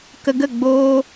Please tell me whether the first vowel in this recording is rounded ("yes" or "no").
no